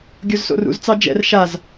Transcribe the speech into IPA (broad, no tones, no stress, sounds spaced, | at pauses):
ɡʲ o z s o̰ r ṵ z t͡s ɑ d͡ʒ ɛ̰ r ʃ a z